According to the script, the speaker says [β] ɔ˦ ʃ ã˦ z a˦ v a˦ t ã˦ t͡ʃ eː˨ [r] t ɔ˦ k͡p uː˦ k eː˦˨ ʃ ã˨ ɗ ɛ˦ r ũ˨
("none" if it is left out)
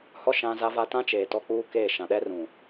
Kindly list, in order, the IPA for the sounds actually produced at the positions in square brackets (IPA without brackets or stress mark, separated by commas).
h, none